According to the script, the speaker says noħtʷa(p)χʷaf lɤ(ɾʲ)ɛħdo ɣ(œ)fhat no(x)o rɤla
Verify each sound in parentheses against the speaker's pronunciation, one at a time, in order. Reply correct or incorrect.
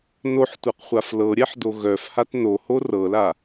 incorrect, correct, correct, incorrect

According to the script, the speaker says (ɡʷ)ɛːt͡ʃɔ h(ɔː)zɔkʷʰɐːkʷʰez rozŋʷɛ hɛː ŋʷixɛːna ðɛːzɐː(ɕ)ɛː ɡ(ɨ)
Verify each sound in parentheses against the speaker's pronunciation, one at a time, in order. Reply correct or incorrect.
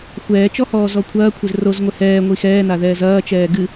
incorrect, correct, incorrect, correct

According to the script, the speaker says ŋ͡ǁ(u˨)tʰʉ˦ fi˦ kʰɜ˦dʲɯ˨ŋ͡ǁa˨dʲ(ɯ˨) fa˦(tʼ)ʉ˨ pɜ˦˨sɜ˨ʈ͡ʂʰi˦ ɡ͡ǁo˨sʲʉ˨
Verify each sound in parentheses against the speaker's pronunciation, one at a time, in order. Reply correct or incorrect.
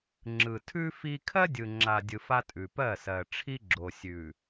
incorrect, correct, correct

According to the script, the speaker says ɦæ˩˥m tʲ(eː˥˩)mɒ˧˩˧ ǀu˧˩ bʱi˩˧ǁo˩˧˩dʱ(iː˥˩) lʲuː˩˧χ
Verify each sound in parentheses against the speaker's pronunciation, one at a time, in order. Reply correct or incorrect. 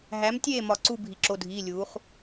correct, incorrect

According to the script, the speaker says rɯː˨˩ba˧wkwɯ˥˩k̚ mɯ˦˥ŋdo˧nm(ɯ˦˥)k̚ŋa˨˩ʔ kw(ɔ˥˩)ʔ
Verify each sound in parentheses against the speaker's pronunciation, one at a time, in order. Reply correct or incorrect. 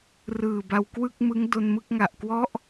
incorrect, incorrect

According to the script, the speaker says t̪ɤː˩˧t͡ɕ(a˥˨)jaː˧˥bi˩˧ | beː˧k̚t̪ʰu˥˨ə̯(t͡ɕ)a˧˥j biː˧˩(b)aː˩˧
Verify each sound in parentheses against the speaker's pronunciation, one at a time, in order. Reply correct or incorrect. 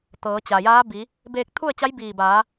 incorrect, correct, correct

